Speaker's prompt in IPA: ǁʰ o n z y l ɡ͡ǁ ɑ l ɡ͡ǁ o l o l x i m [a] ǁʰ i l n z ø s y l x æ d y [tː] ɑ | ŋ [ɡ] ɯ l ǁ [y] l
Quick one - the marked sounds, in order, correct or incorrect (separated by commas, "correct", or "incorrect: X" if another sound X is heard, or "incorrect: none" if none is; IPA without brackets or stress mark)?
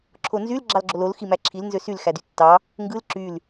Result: incorrect: æ, correct, correct, correct